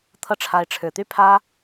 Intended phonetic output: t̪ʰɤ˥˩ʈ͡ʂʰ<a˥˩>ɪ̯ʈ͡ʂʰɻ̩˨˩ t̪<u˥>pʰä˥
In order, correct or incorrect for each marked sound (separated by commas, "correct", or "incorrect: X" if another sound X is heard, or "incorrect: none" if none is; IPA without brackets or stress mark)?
incorrect: a˧˥, incorrect: y˥